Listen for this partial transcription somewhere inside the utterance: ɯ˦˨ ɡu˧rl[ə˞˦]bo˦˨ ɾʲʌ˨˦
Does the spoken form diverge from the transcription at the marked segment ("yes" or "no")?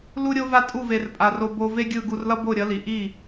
yes